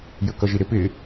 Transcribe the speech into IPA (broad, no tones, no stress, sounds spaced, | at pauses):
j ə k ʌ ʒ i ɾ ɪ p ɪ